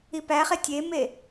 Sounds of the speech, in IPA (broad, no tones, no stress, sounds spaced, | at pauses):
i p æ χ e tʲ e m e